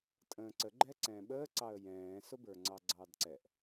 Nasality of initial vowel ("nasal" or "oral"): nasal